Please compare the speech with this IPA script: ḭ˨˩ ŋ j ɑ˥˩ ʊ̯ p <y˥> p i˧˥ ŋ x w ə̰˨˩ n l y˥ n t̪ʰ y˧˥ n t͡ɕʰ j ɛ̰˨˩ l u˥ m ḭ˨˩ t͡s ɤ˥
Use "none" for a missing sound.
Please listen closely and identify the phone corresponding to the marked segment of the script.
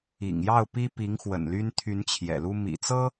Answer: i˥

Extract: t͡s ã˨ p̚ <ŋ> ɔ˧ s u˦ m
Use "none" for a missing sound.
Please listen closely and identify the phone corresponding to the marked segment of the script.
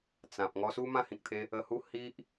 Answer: ŋ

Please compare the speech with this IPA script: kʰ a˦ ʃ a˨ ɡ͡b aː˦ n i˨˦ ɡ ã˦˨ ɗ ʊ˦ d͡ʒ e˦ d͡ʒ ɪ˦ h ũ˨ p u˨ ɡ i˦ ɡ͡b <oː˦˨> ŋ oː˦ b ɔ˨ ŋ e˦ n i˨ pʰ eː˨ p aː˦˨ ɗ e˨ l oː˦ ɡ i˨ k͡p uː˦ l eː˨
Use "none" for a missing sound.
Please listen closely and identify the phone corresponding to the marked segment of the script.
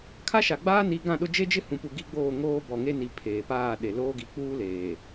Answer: oː˦˨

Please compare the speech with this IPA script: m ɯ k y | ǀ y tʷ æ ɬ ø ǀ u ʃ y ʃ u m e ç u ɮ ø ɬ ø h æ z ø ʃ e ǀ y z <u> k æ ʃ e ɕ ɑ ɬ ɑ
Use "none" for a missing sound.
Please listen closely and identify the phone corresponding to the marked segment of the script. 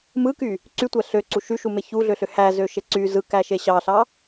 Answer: ɯ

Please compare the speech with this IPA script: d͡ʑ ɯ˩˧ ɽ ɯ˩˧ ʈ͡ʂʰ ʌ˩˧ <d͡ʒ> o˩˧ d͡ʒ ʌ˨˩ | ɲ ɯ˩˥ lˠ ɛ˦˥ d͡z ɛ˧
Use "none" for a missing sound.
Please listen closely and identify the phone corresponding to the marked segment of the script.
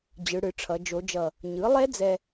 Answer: d͡ʒ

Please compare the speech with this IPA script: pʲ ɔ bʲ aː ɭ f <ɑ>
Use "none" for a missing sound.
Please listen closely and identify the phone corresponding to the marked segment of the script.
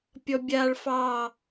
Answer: ɑ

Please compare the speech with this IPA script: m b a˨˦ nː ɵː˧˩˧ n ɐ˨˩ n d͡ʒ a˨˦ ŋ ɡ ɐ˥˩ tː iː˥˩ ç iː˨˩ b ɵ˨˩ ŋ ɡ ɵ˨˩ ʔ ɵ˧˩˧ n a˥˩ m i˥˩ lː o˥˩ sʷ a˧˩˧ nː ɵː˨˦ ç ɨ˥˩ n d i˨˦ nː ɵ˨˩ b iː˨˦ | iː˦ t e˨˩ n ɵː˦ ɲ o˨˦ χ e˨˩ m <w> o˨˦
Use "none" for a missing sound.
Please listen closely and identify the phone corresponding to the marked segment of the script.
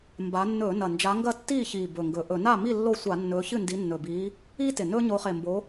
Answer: b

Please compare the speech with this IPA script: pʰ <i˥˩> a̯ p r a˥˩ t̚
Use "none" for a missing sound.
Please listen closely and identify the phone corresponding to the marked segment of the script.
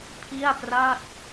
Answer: i˥˩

